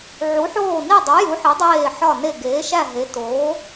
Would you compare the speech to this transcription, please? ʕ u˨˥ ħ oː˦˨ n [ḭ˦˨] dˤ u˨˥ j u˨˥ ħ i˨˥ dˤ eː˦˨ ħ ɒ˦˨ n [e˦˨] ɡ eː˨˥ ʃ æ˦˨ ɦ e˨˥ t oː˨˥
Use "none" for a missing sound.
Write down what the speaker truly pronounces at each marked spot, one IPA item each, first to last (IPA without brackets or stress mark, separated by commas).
i˦˨, e˦˨